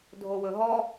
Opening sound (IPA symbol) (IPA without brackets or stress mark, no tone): dʱ